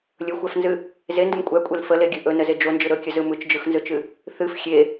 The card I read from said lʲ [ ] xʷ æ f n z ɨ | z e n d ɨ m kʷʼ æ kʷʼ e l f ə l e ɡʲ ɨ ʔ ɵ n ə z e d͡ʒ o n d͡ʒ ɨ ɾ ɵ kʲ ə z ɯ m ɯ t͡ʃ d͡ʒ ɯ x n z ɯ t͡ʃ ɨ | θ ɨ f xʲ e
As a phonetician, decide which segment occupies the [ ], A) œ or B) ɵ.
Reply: B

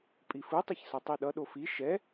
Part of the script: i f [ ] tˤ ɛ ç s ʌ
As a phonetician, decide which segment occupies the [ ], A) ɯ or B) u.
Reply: A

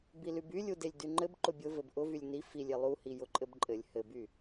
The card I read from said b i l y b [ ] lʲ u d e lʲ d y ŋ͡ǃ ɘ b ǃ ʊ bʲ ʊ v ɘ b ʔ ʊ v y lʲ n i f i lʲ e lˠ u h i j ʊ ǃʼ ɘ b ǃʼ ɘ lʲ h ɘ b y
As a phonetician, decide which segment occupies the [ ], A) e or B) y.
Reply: B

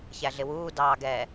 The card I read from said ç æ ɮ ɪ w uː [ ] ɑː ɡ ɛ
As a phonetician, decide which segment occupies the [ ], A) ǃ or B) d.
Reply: B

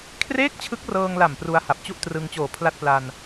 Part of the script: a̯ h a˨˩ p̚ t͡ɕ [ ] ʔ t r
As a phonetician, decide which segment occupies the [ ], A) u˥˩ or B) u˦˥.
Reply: A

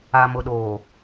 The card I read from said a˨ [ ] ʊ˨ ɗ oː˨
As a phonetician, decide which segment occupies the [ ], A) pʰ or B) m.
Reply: B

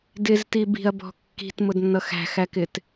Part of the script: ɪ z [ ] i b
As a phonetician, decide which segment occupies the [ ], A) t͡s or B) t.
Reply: B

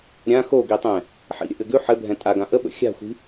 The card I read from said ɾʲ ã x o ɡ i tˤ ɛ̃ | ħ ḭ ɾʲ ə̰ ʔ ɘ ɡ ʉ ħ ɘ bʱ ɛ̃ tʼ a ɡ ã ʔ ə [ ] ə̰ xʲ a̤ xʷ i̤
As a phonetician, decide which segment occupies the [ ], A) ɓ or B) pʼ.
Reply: A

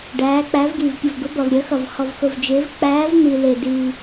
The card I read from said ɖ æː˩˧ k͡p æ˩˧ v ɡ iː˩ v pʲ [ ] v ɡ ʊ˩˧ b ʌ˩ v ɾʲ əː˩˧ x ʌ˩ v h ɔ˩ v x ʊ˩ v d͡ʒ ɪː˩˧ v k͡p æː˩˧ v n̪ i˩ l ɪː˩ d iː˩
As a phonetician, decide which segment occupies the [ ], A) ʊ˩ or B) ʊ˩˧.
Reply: A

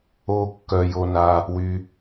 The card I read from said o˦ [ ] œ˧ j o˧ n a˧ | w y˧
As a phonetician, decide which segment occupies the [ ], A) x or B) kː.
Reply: B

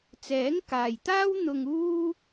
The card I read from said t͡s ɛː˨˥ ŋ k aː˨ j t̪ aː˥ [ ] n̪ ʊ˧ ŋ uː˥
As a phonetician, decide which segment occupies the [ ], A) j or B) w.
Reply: B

